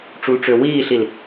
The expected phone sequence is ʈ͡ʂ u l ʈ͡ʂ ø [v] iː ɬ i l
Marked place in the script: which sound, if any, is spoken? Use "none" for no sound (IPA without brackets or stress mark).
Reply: w